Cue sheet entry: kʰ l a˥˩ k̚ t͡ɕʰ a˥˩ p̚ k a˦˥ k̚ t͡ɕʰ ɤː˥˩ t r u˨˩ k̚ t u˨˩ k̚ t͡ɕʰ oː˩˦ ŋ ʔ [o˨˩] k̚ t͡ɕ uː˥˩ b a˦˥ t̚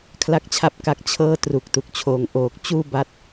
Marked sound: incorrect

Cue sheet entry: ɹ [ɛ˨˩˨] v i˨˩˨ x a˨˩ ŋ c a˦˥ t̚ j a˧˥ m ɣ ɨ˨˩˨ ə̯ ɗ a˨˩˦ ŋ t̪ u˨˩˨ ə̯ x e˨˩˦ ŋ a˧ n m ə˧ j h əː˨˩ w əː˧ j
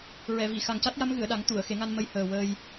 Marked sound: correct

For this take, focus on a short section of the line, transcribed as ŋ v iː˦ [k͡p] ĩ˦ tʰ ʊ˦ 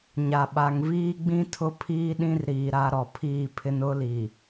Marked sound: incorrect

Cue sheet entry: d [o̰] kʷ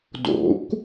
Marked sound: correct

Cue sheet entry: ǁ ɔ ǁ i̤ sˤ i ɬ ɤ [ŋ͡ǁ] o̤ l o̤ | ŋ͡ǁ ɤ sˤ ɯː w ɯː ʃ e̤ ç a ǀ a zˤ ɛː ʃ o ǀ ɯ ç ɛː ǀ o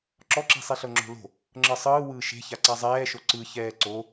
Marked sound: correct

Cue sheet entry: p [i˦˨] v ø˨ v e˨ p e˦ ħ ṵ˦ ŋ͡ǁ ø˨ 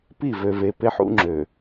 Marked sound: correct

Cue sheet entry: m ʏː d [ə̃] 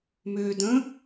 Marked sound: correct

